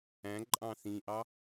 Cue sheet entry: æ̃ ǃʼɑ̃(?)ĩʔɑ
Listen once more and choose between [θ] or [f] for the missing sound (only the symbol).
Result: θ